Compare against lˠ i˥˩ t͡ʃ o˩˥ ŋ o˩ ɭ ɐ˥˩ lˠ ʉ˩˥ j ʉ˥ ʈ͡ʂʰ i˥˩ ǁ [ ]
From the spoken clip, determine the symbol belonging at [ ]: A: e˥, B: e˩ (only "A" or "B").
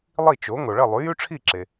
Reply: B